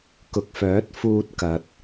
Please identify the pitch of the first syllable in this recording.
low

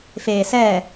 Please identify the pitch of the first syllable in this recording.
low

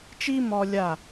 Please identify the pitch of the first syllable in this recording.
high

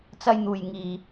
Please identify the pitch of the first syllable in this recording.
high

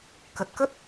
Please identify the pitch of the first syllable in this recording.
low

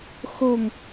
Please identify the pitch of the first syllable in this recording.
falling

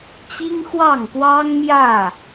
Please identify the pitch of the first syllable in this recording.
high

